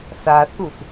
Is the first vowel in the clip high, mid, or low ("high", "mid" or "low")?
low